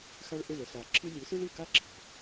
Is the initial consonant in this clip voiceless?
yes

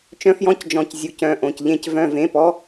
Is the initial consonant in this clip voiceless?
yes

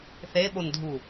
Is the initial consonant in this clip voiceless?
yes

